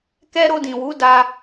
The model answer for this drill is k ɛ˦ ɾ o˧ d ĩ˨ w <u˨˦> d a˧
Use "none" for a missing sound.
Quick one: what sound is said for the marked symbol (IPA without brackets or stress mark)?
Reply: u˨˦